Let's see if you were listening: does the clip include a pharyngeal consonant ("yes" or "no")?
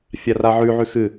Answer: yes